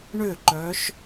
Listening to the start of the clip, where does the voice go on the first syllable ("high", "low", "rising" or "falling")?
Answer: falling